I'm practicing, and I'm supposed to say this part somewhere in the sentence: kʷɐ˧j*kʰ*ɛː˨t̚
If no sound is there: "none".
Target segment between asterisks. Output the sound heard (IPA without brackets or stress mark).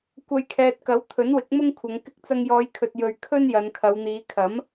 kʰ